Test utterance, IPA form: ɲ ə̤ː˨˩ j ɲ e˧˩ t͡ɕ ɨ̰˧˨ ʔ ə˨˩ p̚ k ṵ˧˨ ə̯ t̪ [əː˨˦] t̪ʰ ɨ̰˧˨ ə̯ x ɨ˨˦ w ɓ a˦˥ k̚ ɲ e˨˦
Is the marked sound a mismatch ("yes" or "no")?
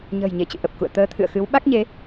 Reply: no